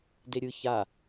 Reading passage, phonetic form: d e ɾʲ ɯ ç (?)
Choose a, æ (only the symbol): a